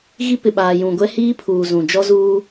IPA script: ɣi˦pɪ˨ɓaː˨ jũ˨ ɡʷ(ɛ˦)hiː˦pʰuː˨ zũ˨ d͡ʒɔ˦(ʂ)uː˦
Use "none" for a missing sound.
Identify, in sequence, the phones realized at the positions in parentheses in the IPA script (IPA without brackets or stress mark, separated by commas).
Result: ɛ˦, z